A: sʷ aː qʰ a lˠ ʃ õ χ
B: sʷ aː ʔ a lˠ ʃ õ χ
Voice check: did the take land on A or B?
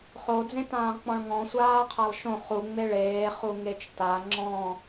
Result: A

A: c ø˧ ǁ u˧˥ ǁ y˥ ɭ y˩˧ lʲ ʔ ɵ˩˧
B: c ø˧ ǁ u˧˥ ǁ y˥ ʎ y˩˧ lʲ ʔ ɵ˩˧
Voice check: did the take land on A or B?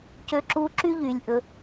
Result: B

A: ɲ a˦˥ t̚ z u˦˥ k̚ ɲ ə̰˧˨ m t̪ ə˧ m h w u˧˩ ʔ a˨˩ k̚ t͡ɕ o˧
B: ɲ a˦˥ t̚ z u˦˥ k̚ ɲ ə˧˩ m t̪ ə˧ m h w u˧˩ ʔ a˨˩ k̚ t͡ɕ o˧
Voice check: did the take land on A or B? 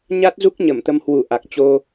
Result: B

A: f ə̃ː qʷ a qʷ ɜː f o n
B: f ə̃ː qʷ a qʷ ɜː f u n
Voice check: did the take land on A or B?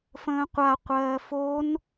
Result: A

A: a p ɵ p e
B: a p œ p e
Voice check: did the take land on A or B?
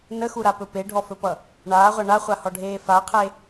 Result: A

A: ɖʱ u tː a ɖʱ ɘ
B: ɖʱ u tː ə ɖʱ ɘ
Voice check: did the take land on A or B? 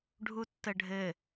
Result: B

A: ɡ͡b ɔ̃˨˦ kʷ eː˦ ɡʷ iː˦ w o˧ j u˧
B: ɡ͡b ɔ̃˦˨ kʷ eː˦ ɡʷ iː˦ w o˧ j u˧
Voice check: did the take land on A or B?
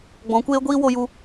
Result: A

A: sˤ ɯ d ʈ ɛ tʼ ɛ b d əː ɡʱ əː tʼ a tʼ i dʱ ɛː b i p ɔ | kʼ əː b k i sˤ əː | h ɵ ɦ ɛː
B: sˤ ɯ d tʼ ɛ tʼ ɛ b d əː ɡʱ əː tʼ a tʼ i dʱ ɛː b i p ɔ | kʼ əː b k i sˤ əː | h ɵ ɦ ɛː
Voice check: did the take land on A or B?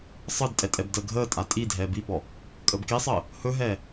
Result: B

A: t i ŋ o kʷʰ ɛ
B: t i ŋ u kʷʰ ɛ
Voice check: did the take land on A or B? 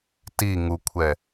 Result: B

